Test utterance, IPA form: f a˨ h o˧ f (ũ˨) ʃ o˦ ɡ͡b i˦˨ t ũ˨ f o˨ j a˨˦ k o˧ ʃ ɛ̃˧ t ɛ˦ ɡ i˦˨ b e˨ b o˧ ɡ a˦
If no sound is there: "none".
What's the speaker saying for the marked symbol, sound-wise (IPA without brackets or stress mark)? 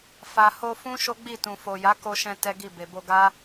ũ˦